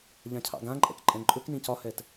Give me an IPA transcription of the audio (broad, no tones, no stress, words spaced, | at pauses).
ʎãcʰɑ̰ɡãǃʼɛ̰k ǃʼɛ̃ǃʼɵknĩ cɒhɛt